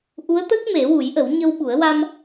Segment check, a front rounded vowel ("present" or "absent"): absent